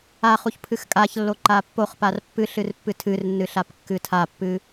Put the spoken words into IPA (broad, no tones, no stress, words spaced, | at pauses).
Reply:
aχuç pʰɨxkʼaçlːo ǃapːoχpar pːɨ ɬɨrpːɨtʰɨrnːɨ ɬapkːɨtʰapːɨ